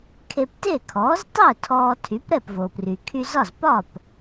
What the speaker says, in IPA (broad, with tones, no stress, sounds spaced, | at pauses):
kʰ e˧ p t e˥˩ kʰ ɔː˩˥ z tˤ ə˥˩ ʊ̯ tʰ ɔː˧ tʰ y˩˥ p ɾ ɛ˥˩ p v o˩ p r y˩ kʰ y˧ z ɒ˥˩ z p ɒ˥˩ p